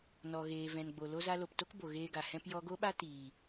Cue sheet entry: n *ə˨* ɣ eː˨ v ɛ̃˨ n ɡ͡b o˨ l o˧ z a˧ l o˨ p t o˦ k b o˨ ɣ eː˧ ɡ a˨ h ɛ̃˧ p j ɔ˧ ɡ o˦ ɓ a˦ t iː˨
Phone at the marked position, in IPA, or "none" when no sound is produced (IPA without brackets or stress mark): ɔ˨